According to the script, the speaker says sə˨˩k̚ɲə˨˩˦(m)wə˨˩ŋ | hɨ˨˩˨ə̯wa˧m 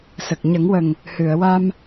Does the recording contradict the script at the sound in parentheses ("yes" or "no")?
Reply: yes